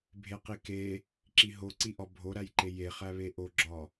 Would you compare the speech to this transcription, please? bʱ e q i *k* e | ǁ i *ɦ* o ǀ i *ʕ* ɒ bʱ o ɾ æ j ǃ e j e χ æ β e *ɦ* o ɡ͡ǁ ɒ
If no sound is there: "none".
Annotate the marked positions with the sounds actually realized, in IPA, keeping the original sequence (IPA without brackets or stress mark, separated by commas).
k, ɦ, ʔ, ʔ